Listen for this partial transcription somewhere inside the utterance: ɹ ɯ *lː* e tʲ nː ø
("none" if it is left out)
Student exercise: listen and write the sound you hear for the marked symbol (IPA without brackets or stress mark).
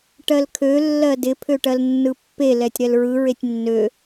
ɹ